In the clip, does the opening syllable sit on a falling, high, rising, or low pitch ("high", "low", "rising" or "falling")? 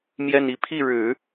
falling